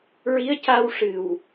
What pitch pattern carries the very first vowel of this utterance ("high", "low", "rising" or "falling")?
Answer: rising